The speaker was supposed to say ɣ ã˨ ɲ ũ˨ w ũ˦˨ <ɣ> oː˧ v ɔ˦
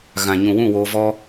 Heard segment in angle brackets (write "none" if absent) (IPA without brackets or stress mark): w